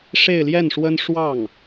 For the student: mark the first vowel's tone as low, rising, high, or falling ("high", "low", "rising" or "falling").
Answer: falling